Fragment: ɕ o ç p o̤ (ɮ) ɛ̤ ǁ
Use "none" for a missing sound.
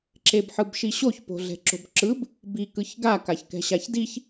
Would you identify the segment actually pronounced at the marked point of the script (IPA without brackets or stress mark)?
ɮ